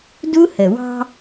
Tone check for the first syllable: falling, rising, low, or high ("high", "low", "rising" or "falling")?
high